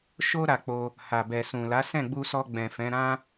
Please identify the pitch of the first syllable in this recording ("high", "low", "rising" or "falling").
high